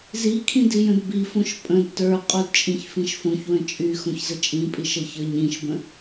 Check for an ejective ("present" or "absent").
present